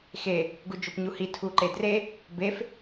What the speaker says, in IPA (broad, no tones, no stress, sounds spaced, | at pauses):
x e | ɡ u d͡ʒ o p ɲ u h i tʰ u ǃ e d r e | b e f